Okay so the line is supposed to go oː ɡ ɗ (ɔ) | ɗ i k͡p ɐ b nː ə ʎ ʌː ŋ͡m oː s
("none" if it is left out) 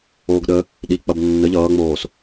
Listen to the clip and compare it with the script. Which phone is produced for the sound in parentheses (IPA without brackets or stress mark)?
ə